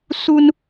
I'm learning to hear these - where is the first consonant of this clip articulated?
tongue tip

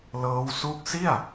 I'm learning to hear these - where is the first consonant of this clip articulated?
tongue tip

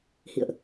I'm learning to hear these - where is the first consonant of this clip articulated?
throat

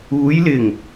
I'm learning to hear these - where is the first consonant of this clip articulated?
palate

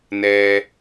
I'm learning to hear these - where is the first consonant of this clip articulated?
tongue tip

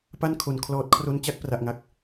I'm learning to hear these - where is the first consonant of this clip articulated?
lips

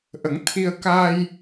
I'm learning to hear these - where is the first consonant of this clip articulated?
throat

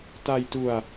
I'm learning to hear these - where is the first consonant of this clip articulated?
tongue tip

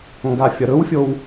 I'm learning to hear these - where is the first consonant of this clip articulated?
velum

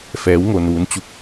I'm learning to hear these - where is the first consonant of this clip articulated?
lips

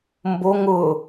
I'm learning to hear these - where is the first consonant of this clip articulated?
lips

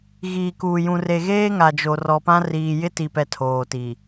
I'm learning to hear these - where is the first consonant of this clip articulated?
velum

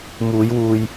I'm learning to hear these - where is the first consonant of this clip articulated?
lips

